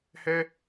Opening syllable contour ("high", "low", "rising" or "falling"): high